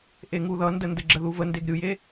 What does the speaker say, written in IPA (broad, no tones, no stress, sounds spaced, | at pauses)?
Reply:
ʔ e ŋ u ð ʌ n d ə n d ə ɡ͡ǁ ə ð u v ə n d e ɡ ɾʲ u j e